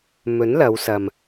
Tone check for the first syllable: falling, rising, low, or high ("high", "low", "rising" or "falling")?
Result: rising